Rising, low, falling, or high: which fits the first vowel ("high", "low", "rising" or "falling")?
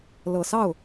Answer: low